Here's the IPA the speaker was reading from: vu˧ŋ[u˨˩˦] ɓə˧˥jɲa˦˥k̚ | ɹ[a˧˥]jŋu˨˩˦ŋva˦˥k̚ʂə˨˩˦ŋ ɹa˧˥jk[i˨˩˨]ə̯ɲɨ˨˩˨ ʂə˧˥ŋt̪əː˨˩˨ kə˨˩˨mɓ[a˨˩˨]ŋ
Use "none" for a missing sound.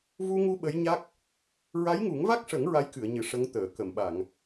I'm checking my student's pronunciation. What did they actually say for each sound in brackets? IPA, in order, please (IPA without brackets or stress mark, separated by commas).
u˧, a˧˥, ɨ˨˩˨, a˨˩˨